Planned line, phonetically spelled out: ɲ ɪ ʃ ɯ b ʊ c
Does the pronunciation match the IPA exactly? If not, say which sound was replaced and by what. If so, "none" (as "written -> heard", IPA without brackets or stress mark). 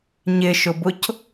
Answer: ɯ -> ʊ